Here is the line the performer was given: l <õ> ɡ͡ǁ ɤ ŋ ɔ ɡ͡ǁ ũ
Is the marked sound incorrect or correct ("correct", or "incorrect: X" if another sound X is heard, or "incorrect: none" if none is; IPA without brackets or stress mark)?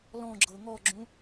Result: incorrect: ɔ̃